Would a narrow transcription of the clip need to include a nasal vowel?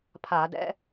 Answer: no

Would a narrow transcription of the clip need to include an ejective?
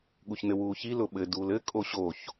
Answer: yes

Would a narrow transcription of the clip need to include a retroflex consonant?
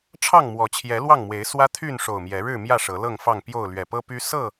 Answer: yes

